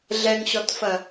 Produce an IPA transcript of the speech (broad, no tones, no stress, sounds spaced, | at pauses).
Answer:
ɮ ɛ ŋ ɕ ɔ t f ɐ